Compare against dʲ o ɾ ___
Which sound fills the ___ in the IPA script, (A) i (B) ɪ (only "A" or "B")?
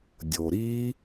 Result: A